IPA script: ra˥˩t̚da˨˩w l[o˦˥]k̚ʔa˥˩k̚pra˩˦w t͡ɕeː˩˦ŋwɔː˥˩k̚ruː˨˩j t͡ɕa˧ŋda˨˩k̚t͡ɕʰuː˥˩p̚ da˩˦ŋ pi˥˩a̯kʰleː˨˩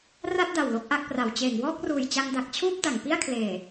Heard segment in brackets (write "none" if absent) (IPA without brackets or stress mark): o˦˥